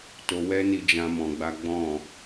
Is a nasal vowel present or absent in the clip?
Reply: present